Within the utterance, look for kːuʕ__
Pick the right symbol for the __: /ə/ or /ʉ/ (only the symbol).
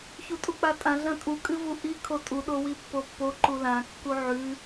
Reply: ʉ